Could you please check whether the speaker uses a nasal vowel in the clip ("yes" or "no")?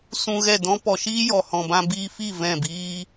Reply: yes